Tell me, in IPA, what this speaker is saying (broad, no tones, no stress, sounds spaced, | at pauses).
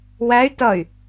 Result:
w æ y̯ t ʌ y̯